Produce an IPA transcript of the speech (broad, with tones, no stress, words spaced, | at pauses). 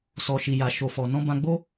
sɔ˧ʃi˧ja˧ ʃo˧fɔ˧ nɔ̃˦bã˦ ɡ͡bo˦